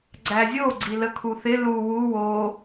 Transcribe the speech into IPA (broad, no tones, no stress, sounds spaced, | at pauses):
ɡ͡ǀ æ zʲ o ɡ͡ǀ i l ə kʰ u θ ɪ l u w u w o